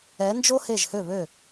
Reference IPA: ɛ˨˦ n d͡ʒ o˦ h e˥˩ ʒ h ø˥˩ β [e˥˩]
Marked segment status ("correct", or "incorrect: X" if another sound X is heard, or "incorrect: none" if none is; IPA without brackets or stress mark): incorrect: ø˥˩